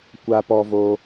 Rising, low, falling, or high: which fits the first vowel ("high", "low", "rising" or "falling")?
high